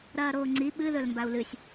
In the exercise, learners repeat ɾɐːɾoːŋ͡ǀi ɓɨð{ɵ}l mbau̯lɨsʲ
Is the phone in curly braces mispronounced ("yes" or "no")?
no